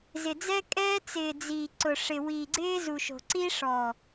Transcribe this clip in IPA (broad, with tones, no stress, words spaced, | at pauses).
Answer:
zɪ˨d͡zɛ˦kʼɛː˦ t͡sɪː˨ d͡ziː˨ǀʊ˨ ʂɪ˨wiː˨ɡ͡ǀɪː˦zu˨ ʃo̤˨ǀi˦ʂɔː˨